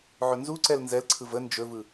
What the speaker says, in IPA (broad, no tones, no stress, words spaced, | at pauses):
ʕɵnzuǀɛl nzɛlǀʰɯv ə nd͡ʒɵvɯ